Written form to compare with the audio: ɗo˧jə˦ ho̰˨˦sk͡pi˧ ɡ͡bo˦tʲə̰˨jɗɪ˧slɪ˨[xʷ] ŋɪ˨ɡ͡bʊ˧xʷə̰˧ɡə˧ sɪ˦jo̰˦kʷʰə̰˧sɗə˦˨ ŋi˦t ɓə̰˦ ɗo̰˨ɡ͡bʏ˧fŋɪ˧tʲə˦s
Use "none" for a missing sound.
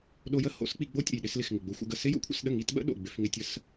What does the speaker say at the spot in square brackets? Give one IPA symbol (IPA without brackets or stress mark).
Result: x